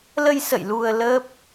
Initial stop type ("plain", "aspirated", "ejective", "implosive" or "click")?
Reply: plain